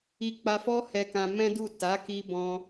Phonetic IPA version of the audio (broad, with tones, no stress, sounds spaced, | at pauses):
i˧ k͡p a˧ f ɔ˦ h ɛ˧ k ã˧ m ɛ̃˦ d u˦˨ t a˨˦ k i˧ b ɔ̃˧